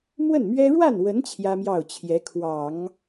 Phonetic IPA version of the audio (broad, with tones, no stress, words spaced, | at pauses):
mwə˥˩nmɥɛ˥ ɻwa˥˩nwə˧˥n t͡ɕʰjä˥mjɑ˥˩ʊ̯t͡ɕʰjɛ˧˥kʰwɑ˨˩˦ŋ